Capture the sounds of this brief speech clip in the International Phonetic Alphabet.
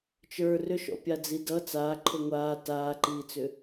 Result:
t͡ʃ ə˞ r ʏ ʃ ɔ̰ pʲ a d͡z i d ʌ t͡s aː ǃʰ o ŋʷ aː t aː ǃ iː t͡s ʏ

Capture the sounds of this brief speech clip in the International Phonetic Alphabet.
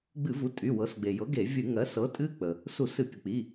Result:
ɡ͡b ɨ˧˩˧ v u˩˥ tʼ y˩˧˩ w ɤ˩˥ s ɡ͡b e˩ j ɤ˩˥ ɡ e˧˩˧ vʲ ɨ˧˩˧ ŋ ɜ˩˥ s ɤ˩˥ tʼ ɨ˦˥ k͡p ə˩ | s u˧˩˧ s ɨ˧˩˧ pʲ ə˩ k͡p i˩˧˩

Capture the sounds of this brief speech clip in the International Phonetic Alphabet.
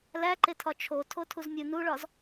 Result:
l æ ǃ e tʰ ɒ t͡ʃʰ o tʰ o tʰ u z mʲ u n u ɭ ɒ z

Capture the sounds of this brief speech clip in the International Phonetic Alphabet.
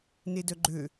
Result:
n e d œ ɡ͡ǃ ø

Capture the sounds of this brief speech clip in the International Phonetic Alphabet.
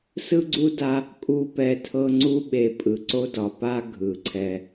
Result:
s ɯ˥ ɡ͡ǀ u˥ d a˦ | kʼ u˥ p ɛ˦ tʰ ɤ˥ ŋ͡ǀ u˦ ɓ e˨ pʼ ɯ˩ ǀ o˥ d ɒ˨ p a˥ ɡʱ ɯ˩ ǀʰ ɛ˨

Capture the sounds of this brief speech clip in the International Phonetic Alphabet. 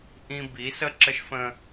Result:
ʔ ĩ˦ b i˨˦ s ə˦ ǁ ə˦ ʃ f ə̃˦

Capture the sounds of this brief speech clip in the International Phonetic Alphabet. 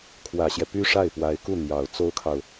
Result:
kʰ w ä˨˩ ɕ j ɛ˦ p y˥ ʂ a˥˩ ɪ̯ p w a˧˥ ɪ̯ k u˥˩ n̪ j ɑ˨˩ ʊ̯ t͡s o˥ ʊ̯ kʰ ɑ˨ ʊ̯

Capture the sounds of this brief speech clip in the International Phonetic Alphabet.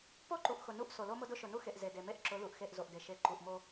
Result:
p o˦ ǃ u˨ ʔ x ʊ˨ n u˦ ʔ s o˨ l o˦ m ʊ˦ d ʊ˦ ʃ ʊ˨ n u˦ x e˨ ʔ z e˨ d e˨ m e˦ ʔ ǁ ʊ˨˦ l u˨ ʔ x e˦˨ ʔ z o˨ ʔ d e˨ ʃ e˨˦ ǃ u˨ ʔ m o˦

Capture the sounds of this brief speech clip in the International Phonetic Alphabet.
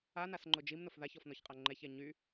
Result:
a n a s ŋ͡ǃ ʊ d͡ʒ i m n ʊ f ð a ç ɔ f n ɔ ç qʼ a ŋ͡ǃ ɛ ç ɛ ɲ y

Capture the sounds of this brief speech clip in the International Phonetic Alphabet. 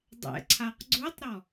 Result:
dˤ ɛ̰ ǀʰ a q ɡ͡ǀ u tˤ ɾ ɔ

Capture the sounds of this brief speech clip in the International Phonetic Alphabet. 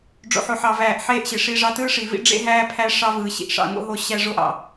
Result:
ɖ͡ʐ o̰˨ ħ o˨ ħ ɑ˨ v æː˨ ʔ ħ eː˦ ʔ ɕ e˨ ʂ iː˦ ʐ ɑ˦ t ɯː˦ ʂ i˨ v ḭ˦ ɖ͡ʐ ḛ˦ ɦ æː˦ pʰ æ˦ ʂ ɑ˦ v ɯː˨ ɕ ḭ˨ ʔ ʂ ɑ̰˦˨ ŋ o̰˦ ɦ o˦ ɕ æ˦ ʐ o˦ ʔ ɑ̰˦˨

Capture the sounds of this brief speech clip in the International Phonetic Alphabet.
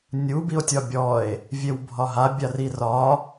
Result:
nʲ u b i o̯ tʲ ɒ bʲ ɔ e̯ | vʲ e w bʱ ɒ ɦ a bʲ a r i r ɒ

